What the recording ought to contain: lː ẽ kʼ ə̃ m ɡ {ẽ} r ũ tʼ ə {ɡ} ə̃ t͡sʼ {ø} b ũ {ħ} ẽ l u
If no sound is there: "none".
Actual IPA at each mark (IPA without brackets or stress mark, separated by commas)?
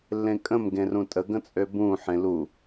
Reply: ẽ, ɡ, ø, ħ